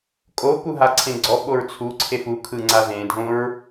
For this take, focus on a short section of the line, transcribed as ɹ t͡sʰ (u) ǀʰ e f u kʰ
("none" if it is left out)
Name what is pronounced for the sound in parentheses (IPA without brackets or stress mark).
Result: u